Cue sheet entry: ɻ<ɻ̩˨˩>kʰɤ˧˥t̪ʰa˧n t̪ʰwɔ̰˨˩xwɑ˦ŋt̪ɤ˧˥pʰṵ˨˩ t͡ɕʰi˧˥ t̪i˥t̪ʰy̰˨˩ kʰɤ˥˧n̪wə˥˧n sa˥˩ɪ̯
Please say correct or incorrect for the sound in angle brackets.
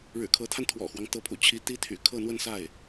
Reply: correct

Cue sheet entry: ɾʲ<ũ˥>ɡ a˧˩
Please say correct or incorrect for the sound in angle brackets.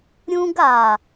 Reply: correct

